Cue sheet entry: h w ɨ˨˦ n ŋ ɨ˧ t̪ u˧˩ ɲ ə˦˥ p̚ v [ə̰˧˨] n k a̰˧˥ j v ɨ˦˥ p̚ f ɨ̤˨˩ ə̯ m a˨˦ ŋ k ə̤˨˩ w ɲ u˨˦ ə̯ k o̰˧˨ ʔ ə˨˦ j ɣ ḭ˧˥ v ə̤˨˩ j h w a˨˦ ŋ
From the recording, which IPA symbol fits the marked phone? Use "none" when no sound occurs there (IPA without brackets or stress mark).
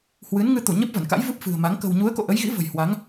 ə˧˩